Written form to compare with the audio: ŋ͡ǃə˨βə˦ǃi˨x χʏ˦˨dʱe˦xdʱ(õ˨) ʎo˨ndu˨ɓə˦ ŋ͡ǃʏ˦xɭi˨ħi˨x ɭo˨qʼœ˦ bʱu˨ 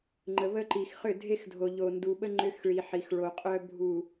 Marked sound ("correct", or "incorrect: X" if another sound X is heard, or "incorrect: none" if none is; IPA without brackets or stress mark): incorrect: o˨